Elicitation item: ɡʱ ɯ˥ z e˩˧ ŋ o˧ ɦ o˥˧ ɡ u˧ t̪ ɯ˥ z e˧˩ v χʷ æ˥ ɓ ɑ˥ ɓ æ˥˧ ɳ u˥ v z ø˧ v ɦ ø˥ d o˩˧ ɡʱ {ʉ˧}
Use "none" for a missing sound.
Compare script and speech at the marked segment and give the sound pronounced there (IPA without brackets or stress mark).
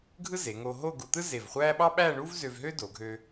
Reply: ø˧